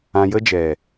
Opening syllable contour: low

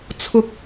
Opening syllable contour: high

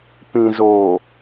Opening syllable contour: low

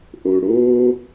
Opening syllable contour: low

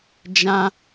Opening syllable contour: high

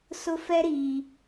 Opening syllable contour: high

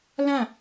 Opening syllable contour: falling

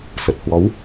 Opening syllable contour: low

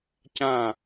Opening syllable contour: falling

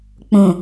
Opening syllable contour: low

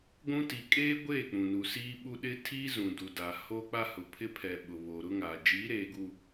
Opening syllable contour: high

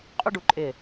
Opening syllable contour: high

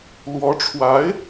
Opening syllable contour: rising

